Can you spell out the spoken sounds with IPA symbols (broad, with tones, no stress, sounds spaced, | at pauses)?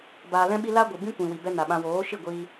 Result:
b aː˨ l ɛ̃˧ ɓ i˧ l a˦ ɡʷ ɨ˨ b ĩ˦ kʷ ĩ˨ w i˨ b ɛ˦ n a˨ ɓ ã˧ w oː˨˦ ʃ i˦˨ ɡʷ iː˧